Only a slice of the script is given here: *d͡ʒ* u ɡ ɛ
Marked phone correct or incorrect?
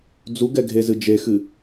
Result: incorrect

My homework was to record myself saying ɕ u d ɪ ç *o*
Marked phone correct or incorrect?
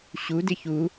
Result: incorrect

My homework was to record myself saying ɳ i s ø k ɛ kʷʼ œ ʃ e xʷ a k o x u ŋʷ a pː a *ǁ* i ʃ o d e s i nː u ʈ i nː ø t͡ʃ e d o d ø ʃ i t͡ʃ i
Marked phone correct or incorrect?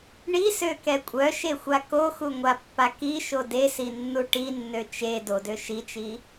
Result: incorrect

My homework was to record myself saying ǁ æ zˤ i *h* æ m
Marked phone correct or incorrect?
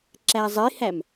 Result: correct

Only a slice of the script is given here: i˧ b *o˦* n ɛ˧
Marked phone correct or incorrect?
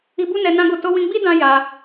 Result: incorrect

